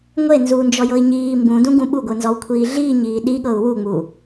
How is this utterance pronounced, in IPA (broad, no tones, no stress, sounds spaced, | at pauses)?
ŋʷ e n z uː n d͡ʒ ɔ j ɤ i̯ ɲ iː m b ũ d ũ ɡ ũ ɓ u ɡʷ ɯ n z ɔ w kʷʰ iː ɮ iː ɲ iː ɗ i ɠ ɤ u̯ w u ŋ͡m u